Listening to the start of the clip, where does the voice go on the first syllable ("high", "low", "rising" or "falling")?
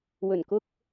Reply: low